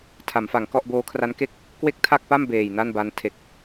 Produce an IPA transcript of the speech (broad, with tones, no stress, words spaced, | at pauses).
tʰa˩˦mfa˩˦ŋkɔ˥˩ʔ boː˦˥kʰra˦˥nke˥˩k̚ | kwe˥˩k̚tʰa˥˩k̚pa˥˩m beː˨˩jna˥˩nba˧n tʰe˨˩k̚